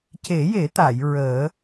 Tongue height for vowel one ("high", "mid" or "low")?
mid